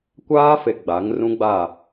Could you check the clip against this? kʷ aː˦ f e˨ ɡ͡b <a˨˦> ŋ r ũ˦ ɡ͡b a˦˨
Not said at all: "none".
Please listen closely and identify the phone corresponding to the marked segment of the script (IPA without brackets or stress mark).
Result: a˨˦